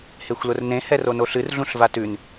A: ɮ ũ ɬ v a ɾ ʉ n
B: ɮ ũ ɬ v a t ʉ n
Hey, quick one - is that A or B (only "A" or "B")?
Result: B